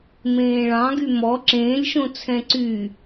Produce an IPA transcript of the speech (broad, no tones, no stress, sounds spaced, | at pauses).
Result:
m ẽː ɭ ɑ̃ ɡ y m ɔ ǁ ẽː lʲ ʃ õ t͡sʰ ɛ̃ ǀ y